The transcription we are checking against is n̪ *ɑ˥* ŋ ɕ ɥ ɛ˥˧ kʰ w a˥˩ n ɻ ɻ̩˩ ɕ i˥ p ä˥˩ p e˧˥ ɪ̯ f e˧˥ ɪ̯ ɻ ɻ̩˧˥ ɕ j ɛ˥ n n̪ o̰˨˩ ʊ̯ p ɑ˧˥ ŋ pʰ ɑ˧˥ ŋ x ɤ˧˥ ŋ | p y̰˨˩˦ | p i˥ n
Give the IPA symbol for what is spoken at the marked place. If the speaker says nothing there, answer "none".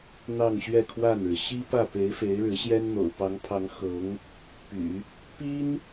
ɑ˥˧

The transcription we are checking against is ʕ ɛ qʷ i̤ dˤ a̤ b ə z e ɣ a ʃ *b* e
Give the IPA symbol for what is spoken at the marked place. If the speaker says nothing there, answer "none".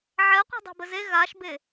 b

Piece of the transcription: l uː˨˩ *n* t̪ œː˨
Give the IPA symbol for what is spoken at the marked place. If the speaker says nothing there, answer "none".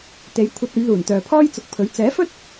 n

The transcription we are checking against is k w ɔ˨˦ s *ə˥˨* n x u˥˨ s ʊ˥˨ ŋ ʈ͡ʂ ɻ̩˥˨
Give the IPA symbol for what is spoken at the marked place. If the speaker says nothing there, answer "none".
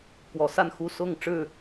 a˥˨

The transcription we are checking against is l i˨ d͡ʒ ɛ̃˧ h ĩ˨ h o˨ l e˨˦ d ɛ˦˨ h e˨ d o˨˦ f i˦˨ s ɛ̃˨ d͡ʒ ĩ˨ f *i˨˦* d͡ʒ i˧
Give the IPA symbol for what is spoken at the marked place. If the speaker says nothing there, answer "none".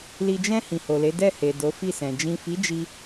i˨˦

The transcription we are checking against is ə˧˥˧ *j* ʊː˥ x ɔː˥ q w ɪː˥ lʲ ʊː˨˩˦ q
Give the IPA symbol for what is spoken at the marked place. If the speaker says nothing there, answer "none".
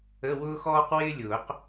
w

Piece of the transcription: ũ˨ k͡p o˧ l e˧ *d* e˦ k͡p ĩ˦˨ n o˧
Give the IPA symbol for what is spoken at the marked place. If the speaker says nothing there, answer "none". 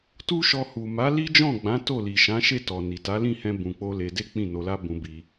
d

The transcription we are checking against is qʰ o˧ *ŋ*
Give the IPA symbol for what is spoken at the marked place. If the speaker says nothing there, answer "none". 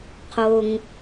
ŋ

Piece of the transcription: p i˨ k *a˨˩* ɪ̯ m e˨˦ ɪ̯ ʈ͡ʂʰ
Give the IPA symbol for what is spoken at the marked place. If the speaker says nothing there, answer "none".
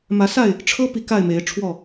a˥˨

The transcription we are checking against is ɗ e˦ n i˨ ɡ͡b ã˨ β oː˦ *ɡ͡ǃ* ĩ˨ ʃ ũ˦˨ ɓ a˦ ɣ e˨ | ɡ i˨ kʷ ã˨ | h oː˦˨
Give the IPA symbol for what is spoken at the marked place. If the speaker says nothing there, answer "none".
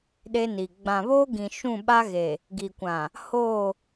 ɡ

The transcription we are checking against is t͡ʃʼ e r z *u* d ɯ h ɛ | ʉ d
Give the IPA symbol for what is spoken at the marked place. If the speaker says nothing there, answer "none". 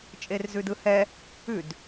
ʉ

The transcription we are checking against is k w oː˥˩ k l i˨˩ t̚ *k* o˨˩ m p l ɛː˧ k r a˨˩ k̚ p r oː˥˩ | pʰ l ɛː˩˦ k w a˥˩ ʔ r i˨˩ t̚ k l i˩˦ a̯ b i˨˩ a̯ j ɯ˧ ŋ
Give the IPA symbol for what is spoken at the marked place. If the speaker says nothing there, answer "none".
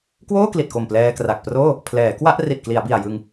k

